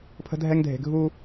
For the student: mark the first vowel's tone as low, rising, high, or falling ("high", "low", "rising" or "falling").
high